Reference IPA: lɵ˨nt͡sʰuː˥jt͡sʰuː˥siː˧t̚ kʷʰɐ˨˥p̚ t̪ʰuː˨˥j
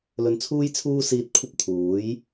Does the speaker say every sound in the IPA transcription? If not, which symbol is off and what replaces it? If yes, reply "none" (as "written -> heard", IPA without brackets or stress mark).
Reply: ɐ˨˥ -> ɐ˥